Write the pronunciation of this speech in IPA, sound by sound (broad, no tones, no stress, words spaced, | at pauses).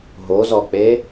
ɦozɔk͡pe